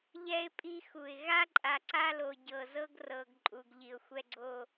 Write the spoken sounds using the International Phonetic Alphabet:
ʎɛ˦ɪ̯pʼi˦xu˨ɪ̯ ɣa˦ǃʼa˨ǀa˦lo˨ ɟɤ˨zɤ˦ɡ rɤ˨ɡ ǃʼu˨ɡʎi˨ʊ̯xʷɛ˦ɡ͡ǀo˦

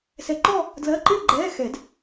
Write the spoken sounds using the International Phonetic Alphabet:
sɛ˧ ǃɔ˥˧ | dlɜ˧˥˧ǃɪː˥˧ɡ͡ǃɛː˧˥˧ xɛ˨˩˦d

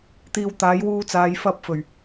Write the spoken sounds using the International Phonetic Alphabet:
t̪iː˧w t̪aː˨˥jwuː˧t͡saː˨˧j fɐ˧p̚fɵ˨˩ɥ

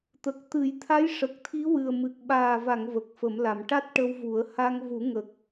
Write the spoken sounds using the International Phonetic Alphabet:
t̪ə˨˩k̚t̪ɨ˨˩˦jt̪ʰa˧˥j ʂə˨˩k̚t̪ʰi˧˥wɨ˨˩ə̯mɨ˨˩k̚ ɓaː˨˩va˨˩˨ŋ və˨˩k̚ fə˨˩˦mla˨˩˨m ʈa˦˥t̚ ʈə˧wvu˨˩˦ə̯ ha˧ŋvu˨˩˦ŋə˨˩k̚

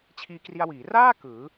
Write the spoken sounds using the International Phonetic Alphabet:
t͡ɕʰiː˧kri˧a̯ wiː˩˦raː˥˩ kɯː˩˦

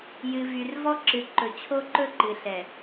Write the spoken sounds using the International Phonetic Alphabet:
jɨ˨vy˨rvɔ˦ǁɨ˨ ǃɵ˨t͡ɕʰo˦ǃɵ˦ǃɨ˨ ɬɛ˨

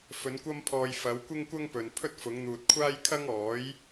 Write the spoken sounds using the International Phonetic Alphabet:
fɵ˨˧nkʷɐ˥mpʰɔː˧j fɐ˨˧wkʷɪ˥ŋkʷɐ˥ŋpɵ˨n pʰɵ˥t̚fʊ˨˧ŋ n̪uː˨t̚kʷʰaː˥jkʰɐ˥ŋɔː˨˥j

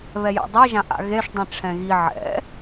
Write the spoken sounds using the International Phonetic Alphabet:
βɛjɛ̰dˤi ʒãʔa̰ɣeʂ dˤĩʈ͡ʂʰɛ̃ɣi ʕɛ̰

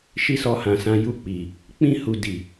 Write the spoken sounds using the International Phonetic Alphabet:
ʃi˦sɔ˧hã˨sã˧ ju˧ k͡pi˨ | k͡pĩ˧hu˨ di˨

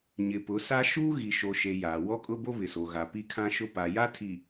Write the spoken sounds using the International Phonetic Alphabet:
ɲɪ˨pʊ˨˦sa˦ ʃuː˦ɣi˨ʃo˨ʃe˨ jaː˨wɔ˦kʼʊ˦bo˦ βɪ˨so˨ɣa˨ pi˦kʰã˦ʃʊ˦ pa˨ja˦tʰi˨

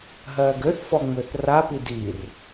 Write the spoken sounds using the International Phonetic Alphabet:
ɦɜːɡøθfɔŋ͡møθ rapi dir

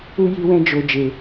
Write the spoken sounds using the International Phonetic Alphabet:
u˧ ji˦wɛ̃˦d͡ʒo˧ d͡ʒe˧

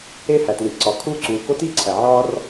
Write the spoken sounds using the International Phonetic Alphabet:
e˥hæ˩tli˩ʔǀɒ˩ kʰuː˥ǀuː˩ko˥ tiː˥ǀʰæ˩ ʕɒː˥r

